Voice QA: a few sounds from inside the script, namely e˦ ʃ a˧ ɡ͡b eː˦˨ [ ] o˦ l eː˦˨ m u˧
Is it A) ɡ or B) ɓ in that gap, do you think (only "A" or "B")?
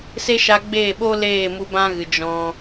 B